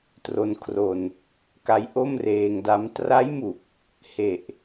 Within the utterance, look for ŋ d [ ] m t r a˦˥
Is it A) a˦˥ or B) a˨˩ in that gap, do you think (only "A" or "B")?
A